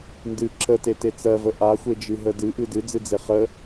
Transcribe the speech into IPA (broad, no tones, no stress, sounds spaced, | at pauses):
n d ɨ ǁ ə t e t e t͡s ɜ v ə ʔ a xʷ e d͡ʒ ɨ ɦ ə d ɨ ʔ ɨ d ɨ d͡z ɨ d͡z e χ ə